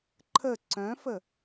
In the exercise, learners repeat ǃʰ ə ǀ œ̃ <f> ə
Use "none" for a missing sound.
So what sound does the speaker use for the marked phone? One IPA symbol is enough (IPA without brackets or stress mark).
f